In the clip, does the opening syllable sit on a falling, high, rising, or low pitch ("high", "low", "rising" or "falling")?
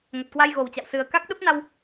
low